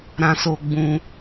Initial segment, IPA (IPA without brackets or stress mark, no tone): ɾ